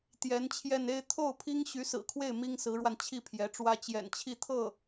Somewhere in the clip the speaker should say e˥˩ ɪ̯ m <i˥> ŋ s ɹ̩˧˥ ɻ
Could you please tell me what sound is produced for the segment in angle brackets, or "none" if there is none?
i˥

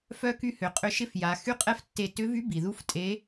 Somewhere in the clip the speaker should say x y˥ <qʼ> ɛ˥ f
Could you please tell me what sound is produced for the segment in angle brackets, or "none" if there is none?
qʼ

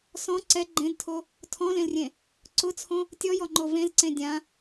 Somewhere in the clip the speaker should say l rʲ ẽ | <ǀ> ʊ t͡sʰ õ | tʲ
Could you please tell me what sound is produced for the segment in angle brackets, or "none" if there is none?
ǀ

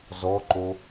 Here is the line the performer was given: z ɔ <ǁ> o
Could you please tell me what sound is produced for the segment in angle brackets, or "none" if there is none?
ǃ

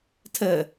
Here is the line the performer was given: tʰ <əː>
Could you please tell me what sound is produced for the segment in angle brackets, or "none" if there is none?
əː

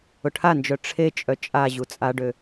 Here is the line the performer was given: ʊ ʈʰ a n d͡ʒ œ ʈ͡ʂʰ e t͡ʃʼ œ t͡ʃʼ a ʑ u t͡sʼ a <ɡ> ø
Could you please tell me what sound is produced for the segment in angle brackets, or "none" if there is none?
ɖ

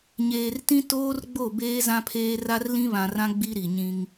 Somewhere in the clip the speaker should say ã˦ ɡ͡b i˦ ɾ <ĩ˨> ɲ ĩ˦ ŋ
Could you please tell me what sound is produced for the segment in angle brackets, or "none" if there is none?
i˨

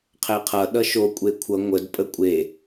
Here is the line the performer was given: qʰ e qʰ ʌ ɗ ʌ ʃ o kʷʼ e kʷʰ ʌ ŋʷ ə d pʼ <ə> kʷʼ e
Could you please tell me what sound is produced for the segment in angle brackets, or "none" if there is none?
ə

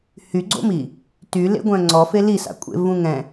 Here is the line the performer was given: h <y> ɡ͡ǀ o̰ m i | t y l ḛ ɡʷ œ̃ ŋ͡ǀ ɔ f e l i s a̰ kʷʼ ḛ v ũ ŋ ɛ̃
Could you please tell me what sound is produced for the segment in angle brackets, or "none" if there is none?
y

